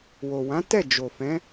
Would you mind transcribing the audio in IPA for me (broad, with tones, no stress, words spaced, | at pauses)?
wo˨wã˨˦ tɛ˦˨ d͡ʒo˨fɛ̃˨˦